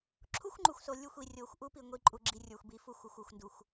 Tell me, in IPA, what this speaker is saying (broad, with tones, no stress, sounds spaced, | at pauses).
ǁʰ u˦ xʷ ŋ͡ǃ u˨ xʷ s o˨ lʲ u˦˨ xʷ i˨ rʲ o˨ xʷ ʔ u˦ p i˨ ŋʷ i˨ ǃʼ u˨ ɡ͡ǁ i˨ rʲ ə˞˨ xʷ b i˨˦ f u˦˨ xʷ u˨ xʷ u˦˨ xʷ n d u˨ xʷ